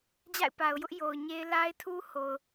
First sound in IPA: d͡ʑ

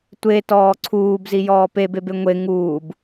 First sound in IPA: tʷ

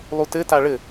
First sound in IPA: lˠ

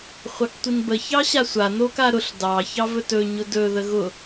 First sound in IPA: χʷ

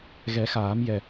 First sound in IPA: ɣ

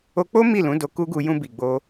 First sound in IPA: o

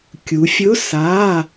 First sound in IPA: kʲ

